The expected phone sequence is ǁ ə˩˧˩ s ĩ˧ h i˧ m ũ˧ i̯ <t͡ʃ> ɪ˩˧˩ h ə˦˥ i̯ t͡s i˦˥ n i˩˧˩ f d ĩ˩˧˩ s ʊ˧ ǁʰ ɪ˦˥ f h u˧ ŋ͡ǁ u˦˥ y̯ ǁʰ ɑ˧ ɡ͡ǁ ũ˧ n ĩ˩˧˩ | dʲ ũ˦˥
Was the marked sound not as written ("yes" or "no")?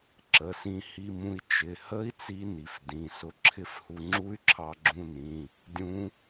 no